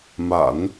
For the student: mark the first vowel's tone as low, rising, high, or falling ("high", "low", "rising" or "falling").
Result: low